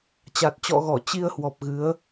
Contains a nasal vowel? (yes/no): no